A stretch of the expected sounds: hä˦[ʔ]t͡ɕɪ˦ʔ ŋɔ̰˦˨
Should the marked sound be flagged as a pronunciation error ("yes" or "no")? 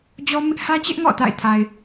yes